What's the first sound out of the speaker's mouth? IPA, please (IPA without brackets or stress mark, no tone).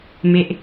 m